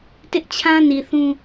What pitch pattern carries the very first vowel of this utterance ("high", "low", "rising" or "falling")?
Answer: high